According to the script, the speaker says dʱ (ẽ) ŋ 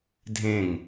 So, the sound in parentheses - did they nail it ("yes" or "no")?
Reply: yes